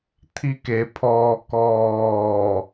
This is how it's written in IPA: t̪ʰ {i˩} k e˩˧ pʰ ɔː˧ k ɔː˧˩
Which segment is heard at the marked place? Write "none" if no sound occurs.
i˧˥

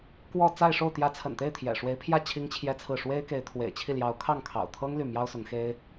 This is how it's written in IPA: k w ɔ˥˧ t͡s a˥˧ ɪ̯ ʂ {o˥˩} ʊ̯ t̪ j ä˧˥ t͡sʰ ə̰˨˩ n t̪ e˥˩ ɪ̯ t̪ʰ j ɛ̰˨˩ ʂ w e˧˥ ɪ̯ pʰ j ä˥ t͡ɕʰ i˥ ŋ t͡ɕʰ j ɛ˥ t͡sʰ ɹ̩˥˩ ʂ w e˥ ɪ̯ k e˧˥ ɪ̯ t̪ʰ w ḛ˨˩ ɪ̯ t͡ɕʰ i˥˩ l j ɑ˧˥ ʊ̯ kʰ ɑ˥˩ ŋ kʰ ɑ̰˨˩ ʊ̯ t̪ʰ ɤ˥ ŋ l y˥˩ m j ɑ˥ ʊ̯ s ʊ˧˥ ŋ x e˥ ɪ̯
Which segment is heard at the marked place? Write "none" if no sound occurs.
o˥˩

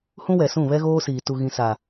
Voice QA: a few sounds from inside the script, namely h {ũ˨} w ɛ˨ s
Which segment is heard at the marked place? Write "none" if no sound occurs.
ũ˦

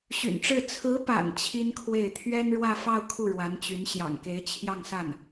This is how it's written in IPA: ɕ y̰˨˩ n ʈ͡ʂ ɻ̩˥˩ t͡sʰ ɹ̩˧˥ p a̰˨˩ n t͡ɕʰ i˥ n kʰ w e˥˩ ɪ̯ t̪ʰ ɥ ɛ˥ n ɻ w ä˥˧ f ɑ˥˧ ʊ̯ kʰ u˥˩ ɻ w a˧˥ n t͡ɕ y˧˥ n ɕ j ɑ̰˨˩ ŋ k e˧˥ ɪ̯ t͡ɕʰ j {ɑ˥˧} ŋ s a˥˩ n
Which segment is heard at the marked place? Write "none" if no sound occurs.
ɑ˥˧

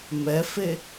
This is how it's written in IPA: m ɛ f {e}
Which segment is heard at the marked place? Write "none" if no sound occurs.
e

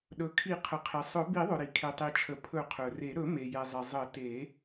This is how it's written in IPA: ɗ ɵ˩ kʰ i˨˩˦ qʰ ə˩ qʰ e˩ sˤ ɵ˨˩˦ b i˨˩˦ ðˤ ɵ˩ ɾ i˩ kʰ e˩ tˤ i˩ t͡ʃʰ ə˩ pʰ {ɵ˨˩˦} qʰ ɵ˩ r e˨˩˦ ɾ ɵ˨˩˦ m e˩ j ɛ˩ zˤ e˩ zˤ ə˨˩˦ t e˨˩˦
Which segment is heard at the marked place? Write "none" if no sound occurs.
ɵ˨˩˦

